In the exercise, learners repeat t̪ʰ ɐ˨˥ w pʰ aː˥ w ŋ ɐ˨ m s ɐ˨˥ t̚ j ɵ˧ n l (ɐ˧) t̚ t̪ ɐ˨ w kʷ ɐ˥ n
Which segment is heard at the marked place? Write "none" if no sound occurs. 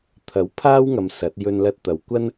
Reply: ɐ˧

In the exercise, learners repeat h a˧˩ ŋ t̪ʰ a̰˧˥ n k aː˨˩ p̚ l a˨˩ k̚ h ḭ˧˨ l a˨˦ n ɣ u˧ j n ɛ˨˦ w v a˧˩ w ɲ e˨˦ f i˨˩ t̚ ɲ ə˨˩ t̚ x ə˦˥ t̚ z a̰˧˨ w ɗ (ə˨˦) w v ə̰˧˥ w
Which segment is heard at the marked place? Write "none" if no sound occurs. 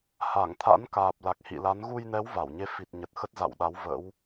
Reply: a˨˦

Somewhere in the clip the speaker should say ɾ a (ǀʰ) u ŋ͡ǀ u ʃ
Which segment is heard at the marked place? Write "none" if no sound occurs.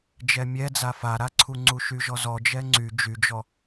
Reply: ǀʰ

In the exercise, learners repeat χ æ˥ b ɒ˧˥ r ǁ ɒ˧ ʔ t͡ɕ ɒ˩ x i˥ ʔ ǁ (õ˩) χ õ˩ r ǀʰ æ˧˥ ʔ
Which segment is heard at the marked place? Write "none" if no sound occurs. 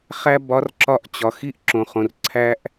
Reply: õ˩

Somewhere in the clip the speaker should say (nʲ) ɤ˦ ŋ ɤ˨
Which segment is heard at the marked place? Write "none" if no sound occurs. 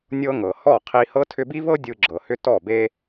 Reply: nʲ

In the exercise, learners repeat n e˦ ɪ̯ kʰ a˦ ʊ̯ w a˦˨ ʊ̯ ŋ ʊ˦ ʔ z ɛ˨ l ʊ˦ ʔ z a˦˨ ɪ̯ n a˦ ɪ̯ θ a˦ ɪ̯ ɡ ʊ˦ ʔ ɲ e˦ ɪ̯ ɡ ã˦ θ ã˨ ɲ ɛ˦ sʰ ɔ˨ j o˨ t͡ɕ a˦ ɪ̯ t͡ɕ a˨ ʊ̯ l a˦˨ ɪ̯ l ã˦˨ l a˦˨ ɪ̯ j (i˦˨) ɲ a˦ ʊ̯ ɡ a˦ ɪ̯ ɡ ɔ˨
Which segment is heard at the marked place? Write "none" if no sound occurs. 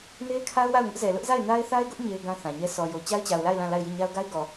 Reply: i˦˨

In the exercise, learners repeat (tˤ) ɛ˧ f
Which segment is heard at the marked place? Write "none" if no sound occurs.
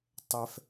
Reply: tˤ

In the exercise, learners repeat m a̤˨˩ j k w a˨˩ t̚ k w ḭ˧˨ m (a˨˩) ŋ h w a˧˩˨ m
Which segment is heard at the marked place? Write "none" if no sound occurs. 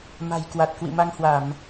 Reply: a˧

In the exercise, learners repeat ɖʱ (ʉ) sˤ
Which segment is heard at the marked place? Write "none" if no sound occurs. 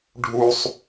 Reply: u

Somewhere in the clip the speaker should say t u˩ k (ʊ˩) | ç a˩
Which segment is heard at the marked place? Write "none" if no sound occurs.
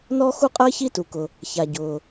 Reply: ʊ˩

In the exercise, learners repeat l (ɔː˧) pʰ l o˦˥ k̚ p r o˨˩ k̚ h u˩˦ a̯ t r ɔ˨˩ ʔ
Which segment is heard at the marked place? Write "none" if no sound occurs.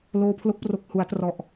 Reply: oː˧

